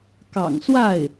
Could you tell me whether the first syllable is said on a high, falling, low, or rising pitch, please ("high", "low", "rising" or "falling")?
low